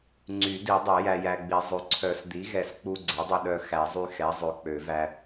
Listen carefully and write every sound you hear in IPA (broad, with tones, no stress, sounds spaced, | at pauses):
ŋ͡ǀ y˨˩˦ d i˨˩˦ dˤ ɛ˨˩˦ j æ˧ j æ˧ ɡ͡b i˨˩˦ zˤ ø˩˥ ǀʰ œ˨˩˦ s d̪ i˩˥ ɣ ɛ˨˩˦ s k͡p u˧ ɡ͡ǀ ɛ˩˥ dˤ ø˧ ɗ œ˧ x æ˨˩˦ zˤ y˧ x ɛ˩˥ zˤ ø˩˥ k͡p ø˨˩˦ v æ˧